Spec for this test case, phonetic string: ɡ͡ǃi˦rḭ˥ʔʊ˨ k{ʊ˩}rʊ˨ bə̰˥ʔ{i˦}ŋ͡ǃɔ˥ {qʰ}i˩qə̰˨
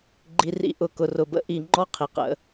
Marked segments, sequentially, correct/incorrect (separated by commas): incorrect, incorrect, correct